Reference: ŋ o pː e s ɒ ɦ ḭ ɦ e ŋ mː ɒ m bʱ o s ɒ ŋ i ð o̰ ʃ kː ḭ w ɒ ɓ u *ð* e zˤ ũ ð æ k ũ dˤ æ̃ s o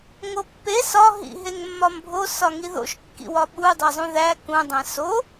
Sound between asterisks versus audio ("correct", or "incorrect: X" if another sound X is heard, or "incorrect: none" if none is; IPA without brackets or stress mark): incorrect: dˤ